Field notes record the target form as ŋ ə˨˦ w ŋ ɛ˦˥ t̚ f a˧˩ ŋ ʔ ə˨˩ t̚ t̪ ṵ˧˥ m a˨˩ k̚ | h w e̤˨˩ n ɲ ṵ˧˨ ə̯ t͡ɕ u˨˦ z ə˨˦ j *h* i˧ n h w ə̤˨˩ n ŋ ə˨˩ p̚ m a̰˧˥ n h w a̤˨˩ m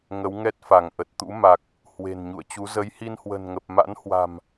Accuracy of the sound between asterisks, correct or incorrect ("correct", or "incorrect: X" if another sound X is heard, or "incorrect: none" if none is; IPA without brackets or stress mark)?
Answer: correct